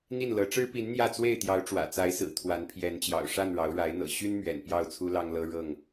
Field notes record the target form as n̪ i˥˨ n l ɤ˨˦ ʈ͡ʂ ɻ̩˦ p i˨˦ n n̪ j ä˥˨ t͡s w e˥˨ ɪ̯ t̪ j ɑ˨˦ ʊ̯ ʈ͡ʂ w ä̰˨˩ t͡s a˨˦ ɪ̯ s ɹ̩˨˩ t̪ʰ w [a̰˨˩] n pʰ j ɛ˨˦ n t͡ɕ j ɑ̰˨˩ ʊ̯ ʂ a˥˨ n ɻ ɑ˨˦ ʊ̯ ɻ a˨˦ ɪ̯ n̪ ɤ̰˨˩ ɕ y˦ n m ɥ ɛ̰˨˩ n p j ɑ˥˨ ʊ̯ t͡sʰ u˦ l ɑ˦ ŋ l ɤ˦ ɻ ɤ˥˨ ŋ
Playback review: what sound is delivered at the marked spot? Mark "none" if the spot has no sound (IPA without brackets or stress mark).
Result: a˨˦